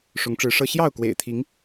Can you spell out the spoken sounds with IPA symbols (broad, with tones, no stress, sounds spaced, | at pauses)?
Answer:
ʂ ʊ˨˦ ŋ ʈ͡ʂ ɻ̩˨˦ ʂ ɤ˦ ɕ j ɑ˥˨ ʊ̯ k w ḛ˨˩ ɪ̯ t̪ʰ i˨˦ ŋ